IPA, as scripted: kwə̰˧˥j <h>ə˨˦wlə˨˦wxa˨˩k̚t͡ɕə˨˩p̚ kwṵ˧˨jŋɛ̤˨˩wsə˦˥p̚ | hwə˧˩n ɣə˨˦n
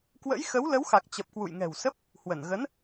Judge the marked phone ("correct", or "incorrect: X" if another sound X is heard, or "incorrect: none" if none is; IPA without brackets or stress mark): incorrect: x